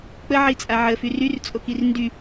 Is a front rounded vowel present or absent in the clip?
present